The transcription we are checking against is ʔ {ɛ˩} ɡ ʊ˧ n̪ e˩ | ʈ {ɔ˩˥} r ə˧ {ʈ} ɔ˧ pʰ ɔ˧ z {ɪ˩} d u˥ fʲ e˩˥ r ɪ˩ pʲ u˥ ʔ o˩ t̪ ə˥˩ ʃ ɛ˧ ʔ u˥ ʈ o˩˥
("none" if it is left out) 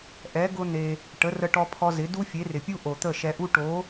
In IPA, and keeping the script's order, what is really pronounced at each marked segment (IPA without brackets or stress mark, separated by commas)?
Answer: ɛ˩˥, ə˩˥, ʈ, ɪ˩˥